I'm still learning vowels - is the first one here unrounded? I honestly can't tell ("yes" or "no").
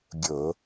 no